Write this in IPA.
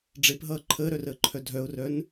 ɖ͡ʐepɦʌː ǃʰəːɾœrəːǃʰœ dʱœʊ̯rœn

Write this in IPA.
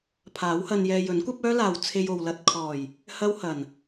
pʰaː˨˥whɐ˧njɛː˧ jɵ˨˥nkʷɐ˥p̚œː˥laː˨w t͡sʰe˧jo˨wlɐ˧t̚ kʰɔː˨˩j | hɐ˥whɐ˨˩n

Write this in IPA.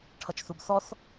ʈʰʌt͡ʃθubθɔθ

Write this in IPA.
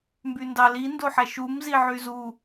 mbyndɑli ndoħæʃum ziʕyzu

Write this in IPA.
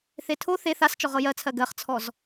θetʰo θe θast͡ʃɔ ʁɤjɜt͡sʰɜ ɡɜχt͡sʰɔz

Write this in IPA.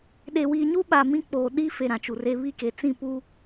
ɗe˨wiː˨ɲu˦ɓa˨ mĩ˦k͡poː˨ ɗi˦ fe˨ ɾã˨t͡ʃu˨re˦ βi˦˨ke˨ t͡sĩ˦˨puː˦

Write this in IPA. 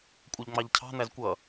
kʷʼʌʎŋ͡mɑʎcʰɑ̤ n̪æzkʷʌ

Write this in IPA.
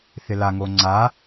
θɪlaŋo ŋ͡ǀa

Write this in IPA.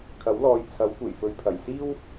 kʰɐ˨˥wlɔː˨˧jt͡sʰɐ˨˥w kʷe˨˩jfɵ˨ɥpʰɐ˨˩jsiː˥w

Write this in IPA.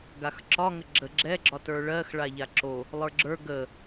ɡaxǁɒŋə ɡ͡ǁə ɡ͡ǁɛɡ͡ǁɒ tə˞ɭɜx ɭaʎaǁo | lˠə˞ɡ͡ǁə˞ ɡə

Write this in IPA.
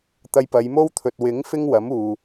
t̪ɐ˧jpɐ˨˧jmo˥wt̪ʰɵ˨t̚ wɪ˨˥ŋ fɪ˥ŋwɐ˨˥m uː˨

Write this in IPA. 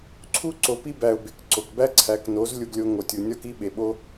ǀʰu˦ ǀo˨pi˧bæ˨ʊ̯ be˨k ǀo˨kbæ˦ǀʰæ˨˦kno˨˦z lʲu˧ɡlʲo˧ŋo˨tʲu˨ nʲɒ˦ki˦ ɓe˨ɓo˧

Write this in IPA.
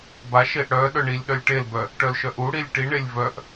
baʃeʔ ɽœ ɗœɳilʲɗœlʲ ʈelbœ | ʈœlʃœʔuɽilʲ ʈiɳelʲ vœʔ

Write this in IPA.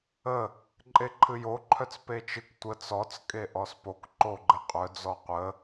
ə | ǃʼeǃʰɨjoǃʰœt͡s pet͡ʃɨk tʷə t͡sɔt͡skʼe ʔɔspok ǃoɡ͡ǃɘqʼœ d͡zɔqʷə

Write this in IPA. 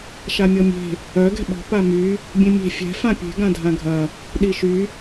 ʃamʲɔmʲe̤ | œ ɡɛ̤ɓɔ̤ pamy | bʲẽmʲe̤ fʲɛ̤ fãpʲe̤ ɡãdʱãɡʱɐ | ɗiʃy

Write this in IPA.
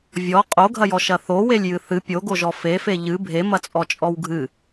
vʲɔ qʼoɡʱɐjɔʃɐ θowelʲjɨ θɨ pʲoɡoʒɔ fefe ʎɨ bʱemɐt͡sʼɔt͡ʃʼɔw ɡʱɨ

